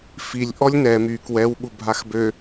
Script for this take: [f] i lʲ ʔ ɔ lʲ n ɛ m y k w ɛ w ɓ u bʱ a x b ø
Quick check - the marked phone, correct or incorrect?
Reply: correct